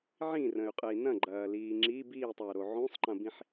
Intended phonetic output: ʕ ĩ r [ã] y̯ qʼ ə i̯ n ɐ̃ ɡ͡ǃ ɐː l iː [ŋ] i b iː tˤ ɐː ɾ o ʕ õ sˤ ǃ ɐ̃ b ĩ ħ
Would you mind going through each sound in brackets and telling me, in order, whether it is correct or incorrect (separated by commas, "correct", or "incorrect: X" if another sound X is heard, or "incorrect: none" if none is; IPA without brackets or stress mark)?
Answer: incorrect: ə̃, incorrect: ŋ͡ǁ